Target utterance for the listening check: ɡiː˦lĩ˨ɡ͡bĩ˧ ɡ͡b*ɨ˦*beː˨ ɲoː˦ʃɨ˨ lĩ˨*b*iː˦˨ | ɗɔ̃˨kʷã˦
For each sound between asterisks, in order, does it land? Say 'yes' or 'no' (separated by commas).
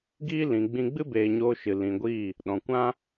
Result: yes, no